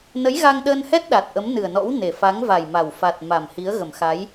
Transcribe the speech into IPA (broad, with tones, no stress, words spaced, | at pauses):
nə˨˦jɣa˧ŋɗəː˧nhɛ˦˥t̚ ɗa˨˩t̚ʔə˨˦mnɨ˨˩ə̯nɔ̰˧˥w ne˨˩fa˨˦ŋva˨˩jma˨˩w fa˨˩t̚ ma˨˩mhi˨˦ə̯ ɣə˨˩mxa˨˦j